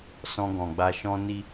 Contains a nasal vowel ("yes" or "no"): yes